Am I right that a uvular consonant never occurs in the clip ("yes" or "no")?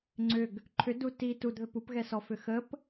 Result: yes